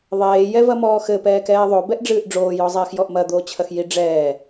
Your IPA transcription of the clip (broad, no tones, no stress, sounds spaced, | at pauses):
ðˤ eː j ɛ v ɐ m ɔː x ɘ p ɛː k ɛː ðˤ o b ɛ ʔ ɖ͡ʐ ɨː ʔ ɖ͡ʐ oː j ɔ zˤ ɛː x j ɔ ʔ m ɐ d̪ oː t͡ɕʰ ɐ x j i ɖ͡ʐ ɛː